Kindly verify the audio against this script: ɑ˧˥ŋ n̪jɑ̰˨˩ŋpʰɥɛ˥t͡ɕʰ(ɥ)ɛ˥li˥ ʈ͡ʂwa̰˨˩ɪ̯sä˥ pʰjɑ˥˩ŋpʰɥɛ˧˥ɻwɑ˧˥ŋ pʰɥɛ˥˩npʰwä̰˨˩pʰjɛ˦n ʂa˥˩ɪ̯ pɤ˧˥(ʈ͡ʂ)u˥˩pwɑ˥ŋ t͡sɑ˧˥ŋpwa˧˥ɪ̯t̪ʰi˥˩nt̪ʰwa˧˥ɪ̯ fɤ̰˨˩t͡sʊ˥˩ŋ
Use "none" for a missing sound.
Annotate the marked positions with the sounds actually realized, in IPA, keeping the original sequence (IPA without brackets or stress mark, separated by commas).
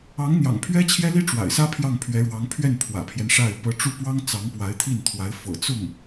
j, ʈ͡ʂ